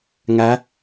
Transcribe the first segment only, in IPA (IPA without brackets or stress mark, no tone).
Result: ŋ